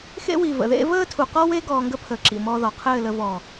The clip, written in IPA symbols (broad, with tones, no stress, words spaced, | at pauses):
xḛ˧wi˨ və̰˨ðḛ˦ vəː˦tʰu˨ qɔ˦we˦ ɡɔː˧ŋɡə˦ pʰəː˨ǁḭ˨ mɔ˧ðɔ˨qʰɘː˦˨lə˧ vɔː˨